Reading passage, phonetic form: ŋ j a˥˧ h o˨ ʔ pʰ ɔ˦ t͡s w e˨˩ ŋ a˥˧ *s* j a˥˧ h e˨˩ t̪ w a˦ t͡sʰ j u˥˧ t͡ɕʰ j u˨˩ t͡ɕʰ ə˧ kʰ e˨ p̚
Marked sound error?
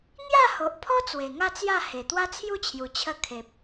yes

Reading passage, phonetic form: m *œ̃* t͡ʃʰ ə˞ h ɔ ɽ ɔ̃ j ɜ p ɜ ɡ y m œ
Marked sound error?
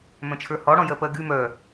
no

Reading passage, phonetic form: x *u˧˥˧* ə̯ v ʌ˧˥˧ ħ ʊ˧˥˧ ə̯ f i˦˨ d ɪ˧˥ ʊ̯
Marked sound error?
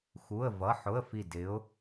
no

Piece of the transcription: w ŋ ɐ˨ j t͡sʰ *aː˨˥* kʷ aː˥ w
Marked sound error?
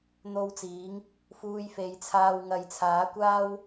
no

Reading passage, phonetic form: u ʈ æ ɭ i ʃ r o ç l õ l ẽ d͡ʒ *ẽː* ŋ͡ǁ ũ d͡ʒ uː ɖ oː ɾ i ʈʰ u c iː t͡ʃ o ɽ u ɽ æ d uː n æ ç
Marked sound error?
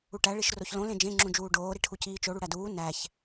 yes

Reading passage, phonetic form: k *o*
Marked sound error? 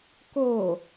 no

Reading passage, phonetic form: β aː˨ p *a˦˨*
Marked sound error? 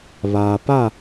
no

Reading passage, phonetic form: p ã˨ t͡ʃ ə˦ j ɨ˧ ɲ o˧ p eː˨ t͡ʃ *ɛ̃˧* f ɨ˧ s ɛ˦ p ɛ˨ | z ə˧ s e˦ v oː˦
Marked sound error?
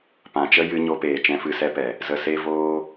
yes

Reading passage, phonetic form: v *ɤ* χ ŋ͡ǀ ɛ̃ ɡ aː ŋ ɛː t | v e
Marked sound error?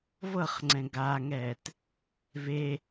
no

